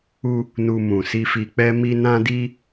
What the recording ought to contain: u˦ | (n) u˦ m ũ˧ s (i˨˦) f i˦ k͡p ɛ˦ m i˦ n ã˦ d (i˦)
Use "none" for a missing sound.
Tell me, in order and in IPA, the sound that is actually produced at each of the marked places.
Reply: n, i˦, i˦

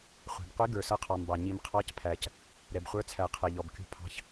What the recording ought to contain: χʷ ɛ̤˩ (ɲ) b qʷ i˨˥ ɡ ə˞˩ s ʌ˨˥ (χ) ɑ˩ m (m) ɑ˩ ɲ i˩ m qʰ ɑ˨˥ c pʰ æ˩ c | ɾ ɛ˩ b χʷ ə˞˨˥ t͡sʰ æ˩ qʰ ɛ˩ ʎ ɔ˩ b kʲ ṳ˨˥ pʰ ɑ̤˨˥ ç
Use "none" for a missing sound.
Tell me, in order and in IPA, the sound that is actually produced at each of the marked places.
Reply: none, qʰ, b

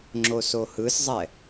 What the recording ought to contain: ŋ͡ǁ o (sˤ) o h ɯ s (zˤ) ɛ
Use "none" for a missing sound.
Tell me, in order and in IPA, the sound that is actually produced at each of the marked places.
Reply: s, zˤ

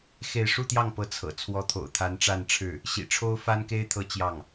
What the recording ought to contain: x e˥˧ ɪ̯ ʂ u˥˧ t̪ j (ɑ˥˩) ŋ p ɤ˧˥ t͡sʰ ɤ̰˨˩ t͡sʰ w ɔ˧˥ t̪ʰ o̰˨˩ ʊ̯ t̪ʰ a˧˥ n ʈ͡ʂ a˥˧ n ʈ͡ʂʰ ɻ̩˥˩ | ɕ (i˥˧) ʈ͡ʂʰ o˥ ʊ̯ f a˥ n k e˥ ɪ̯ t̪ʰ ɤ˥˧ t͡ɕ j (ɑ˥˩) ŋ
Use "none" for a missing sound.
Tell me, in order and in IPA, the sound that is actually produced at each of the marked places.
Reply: ɑ˥˩, ḭ˨˩, ɑ˥˩

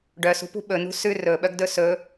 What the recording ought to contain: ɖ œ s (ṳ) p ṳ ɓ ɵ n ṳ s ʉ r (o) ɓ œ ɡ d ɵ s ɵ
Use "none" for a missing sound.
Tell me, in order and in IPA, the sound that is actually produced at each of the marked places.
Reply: ṳ, ɵ

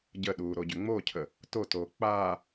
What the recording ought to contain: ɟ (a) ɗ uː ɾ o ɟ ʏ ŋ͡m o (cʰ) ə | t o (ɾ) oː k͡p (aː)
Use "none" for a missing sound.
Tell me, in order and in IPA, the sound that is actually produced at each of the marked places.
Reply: ə, cʰ, t, aː

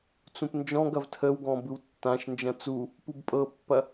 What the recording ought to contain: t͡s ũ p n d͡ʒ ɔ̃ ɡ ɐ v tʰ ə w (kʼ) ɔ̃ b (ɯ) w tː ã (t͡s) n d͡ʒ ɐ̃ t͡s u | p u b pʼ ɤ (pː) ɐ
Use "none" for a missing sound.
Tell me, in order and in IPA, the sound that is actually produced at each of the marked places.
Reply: ɡ, ɯ, ʃ, pː

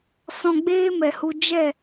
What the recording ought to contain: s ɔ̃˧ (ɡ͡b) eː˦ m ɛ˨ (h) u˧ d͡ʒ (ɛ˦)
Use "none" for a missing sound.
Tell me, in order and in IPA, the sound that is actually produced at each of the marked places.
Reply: ɡ͡b, h, ɛ˦˨

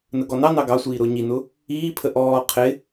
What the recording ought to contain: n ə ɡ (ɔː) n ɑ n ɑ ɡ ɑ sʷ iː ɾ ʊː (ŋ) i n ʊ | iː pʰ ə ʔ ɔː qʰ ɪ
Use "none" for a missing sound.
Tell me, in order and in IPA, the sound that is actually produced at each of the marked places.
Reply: ɔ, ɲ

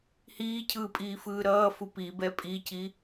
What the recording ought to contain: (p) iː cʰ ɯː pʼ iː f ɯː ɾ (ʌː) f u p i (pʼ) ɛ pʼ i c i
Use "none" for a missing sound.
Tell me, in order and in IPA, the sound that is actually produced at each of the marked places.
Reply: h, ʌː, b

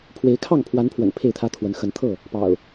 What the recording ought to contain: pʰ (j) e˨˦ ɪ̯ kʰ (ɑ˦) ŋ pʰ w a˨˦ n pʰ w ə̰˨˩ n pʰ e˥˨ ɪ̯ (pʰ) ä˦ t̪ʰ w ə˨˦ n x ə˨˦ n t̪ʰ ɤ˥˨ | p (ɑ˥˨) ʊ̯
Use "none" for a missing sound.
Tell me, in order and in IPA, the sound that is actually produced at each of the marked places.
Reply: w, ɑ˥˨, t̪ʰ, ɑ̰˨˩

